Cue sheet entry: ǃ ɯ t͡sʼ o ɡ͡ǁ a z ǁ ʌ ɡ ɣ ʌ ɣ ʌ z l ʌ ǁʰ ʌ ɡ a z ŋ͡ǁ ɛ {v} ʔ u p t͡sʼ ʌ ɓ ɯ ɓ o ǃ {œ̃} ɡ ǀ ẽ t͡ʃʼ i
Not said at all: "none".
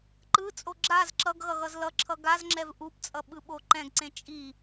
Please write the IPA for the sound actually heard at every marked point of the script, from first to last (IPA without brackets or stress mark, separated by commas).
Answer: v, ɛ̃